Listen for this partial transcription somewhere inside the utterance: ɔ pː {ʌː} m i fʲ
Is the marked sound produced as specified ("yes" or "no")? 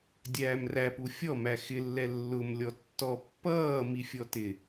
yes